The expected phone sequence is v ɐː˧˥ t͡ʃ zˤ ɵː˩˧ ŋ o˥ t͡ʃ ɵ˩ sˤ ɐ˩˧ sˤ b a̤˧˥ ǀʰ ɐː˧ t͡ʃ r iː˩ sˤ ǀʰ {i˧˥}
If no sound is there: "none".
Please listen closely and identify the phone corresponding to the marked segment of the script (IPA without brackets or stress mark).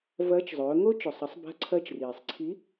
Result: i˧˥